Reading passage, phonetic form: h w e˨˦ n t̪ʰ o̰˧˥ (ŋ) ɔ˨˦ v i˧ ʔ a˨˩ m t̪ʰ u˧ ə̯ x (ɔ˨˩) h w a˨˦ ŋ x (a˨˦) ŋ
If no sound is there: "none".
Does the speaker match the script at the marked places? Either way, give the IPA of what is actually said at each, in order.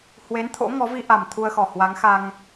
ŋ, ɔ˨˩, a˧

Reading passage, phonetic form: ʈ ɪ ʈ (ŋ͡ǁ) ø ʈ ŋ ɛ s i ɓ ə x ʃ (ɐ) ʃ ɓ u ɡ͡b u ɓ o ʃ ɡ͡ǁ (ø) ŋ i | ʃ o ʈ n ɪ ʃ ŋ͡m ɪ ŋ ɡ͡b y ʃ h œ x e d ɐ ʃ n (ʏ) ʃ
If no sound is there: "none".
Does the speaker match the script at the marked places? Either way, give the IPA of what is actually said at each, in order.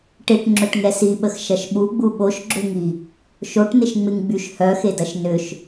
ŋ͡ǁ, ɐ, ø, ʏ

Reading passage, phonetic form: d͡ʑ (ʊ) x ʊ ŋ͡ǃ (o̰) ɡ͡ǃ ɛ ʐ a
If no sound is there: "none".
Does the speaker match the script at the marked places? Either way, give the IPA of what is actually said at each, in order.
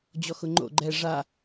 ɔ, o̰

